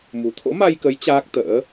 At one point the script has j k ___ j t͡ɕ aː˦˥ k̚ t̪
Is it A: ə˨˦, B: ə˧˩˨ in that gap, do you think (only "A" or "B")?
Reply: A